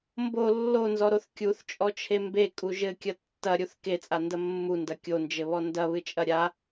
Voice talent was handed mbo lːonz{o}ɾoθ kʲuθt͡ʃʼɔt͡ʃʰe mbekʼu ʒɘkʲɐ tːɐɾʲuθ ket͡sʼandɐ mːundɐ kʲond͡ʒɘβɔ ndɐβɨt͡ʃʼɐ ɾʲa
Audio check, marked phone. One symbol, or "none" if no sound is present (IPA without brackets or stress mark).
ɔ